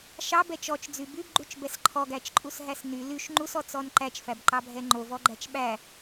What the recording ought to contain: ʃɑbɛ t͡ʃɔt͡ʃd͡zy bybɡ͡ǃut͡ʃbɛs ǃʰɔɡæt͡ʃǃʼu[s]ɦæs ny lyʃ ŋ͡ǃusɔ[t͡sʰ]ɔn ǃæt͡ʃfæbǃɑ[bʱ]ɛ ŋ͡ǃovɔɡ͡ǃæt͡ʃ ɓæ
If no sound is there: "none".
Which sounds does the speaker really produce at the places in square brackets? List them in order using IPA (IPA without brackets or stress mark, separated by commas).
s, t͡s, bʱ